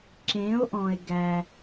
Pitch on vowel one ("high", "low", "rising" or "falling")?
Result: rising